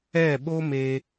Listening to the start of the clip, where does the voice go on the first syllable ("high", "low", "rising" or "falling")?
falling